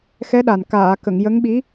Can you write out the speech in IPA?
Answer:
x ɛ˧˥ ɗ a˨˩ n k aː˨˩˨ k ə˨˩˨ ŋ j ə˧˥ ŋ ɓ i˧˥

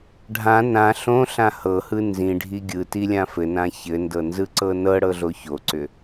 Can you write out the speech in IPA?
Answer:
ɖʱ ã n ã ɬ õ ɬ ã h ɤ h ɯ n z ĩ ɖʱ i ɡʲ ɯ t i lʲ ã f ɘ n ã ç ɘ n d ɤ n z ɯ ǀ ɤ n ɤ ɽ ɤ ɮ o ç o ǀ ʏ

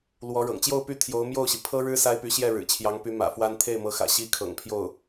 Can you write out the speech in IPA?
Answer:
l w ɔ˧˥ ɻ ɤ̰˨˩ ŋ t͡ɕ j o˥˧ ʊ̯ p y˥˩ t̪ʰ j o˧˥ ʊ̯ m j o˥˩ ʊ̯ ɕ i˩ pʰ ɤ˥ ɻ ɻ̩˥ s a˥ ɪ̯ p y˧˥ ɕ j ɛ˥˩ ɻ ɻ̩˨˩ t͡ɕʰ j ɑ˧˥ ŋ p y˧˥ m ä̰˨˩ f w a˥ n t̪ʰ e˥˩ ɪ̯ m ɤ˧˥ x ä̰˨˩ ɕ i˥ kʰ ɤ̰˨˩ ŋ pʰ j o˥˩ ʊ̯

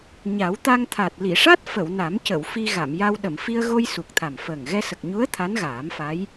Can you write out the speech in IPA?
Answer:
ɲ a˨˩˦ w t̪ a˧ ŋ t̪ʰ a˨˩ t̚ l i˨˩˨ ʂ a˦˥ t̚ f ə˨˩˨ w n a˨˩˦ m c ə˨˩˨ w f i˧ ɣ a˨˩˨ m j a˧ w ɗ ə˨˩˨ m f i˧ ə̯ ɣ o˧ j s u˨˩ k̚ t̪ʰ a˨˩ m f əː˨˩ ŋ ɣ ɛ˧ s ə˨˩ k̚ ɲ u˧˥ ə̯ t̪ʰ a˧˥ n ɣ aː˨˩˦ m f a˧˥ j

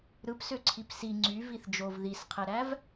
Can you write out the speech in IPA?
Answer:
ɾ ɯ p s ø ǀʰ i p s i ŋ͡ǀ y v i θ d͡ʒ o v ð i s qʰ e ɾ æ v

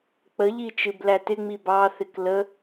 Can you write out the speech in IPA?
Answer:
k͡p ə ʎ i t͡ʃ ɨ b l æ t ɪ ŋ͡m i b ɑ θ ɪ k l ə

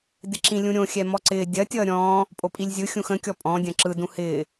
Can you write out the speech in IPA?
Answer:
d ɪ ǁ ĩ lʲ ũ ɾʲ õ xʲ ɛ m ɔ ǀ ɪː dʲ ɐ tʲ ʌː ɾʲ ɔ̃ː | pʼ o pʼ i lʲ zʲ ɯ xʲ ũ x ə̃ kʲ ɔ pʼ ɔ̃ dʲ ɐ̃ ǁ ɯ d ũ h ɪː

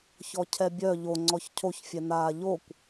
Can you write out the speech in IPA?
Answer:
ç ɔ cʰ ɛ bʲ œ ʎ o ŋ͡ǀ ɔ ç cʰ o ç fʲ ɛ n aː ʎ o kʷ

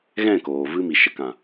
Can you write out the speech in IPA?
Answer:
ɣ ɛ̃˦˨ k oː˨ v ɨ˧ m i˨ ʃ ə˨ k ã˨

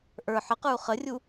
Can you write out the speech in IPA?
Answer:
ʔ ə˞ ħ ə q ə˞ u̯ χ ə rʲ u

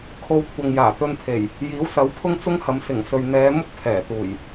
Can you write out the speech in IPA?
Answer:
kʰ o˧ w kʷʰ ɐ˨ ŋ j aː˨˩ t̪ ɵ˧ n pʰ e˨˩ j | j iː˨˥ w s ɐ˨˥ w pʰ ʊ˥ ŋ t͡s ʊ˥ ŋ h ɐ˨˧ m s ɪ˨˩ ŋ s ɵ˨ ɥ n̪ ɛː˨˧ m ʊ˥ k̚ pʰ ɛː˨˩ t̪ uː˨˩ j

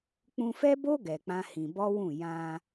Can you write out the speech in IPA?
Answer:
k͡p ũ˧ f ɛ˦ b o˦ ɡ ɛ˧ k͡p ã˦ h ĩ˧ b ɔ˦ w ũ˦˨ j ã˧

